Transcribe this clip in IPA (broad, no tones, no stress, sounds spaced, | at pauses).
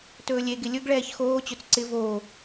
t ɵː lʲ e ɡ ɪ lʲ ɵ ɡ ɭ ɛː ç x oː t͡ɕ ɵ t͡s ǀ ɪ v oː